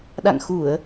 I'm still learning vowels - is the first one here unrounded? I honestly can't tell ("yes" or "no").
yes